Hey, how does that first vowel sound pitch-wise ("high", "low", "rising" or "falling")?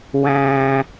low